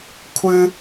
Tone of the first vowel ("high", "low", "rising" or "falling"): high